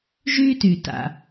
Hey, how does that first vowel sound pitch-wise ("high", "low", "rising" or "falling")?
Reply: high